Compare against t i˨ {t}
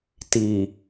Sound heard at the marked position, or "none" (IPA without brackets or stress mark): none